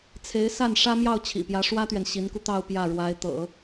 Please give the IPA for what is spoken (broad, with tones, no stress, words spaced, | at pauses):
t͡sʰe˧˥ɪ̯ sa˥˩n ʂä˥ mjɑ˥˩ʊ̯t͡ɕʰḭ˨˩pjä˧˥ ʂwä˥t̪ɥɛ˨n ɕi˧˥nku˧t̪ɑ˥˧ʊ̯ pjä˥˩ɻwa˧˥ɪ̯ t̪ɤ̰˨˩˦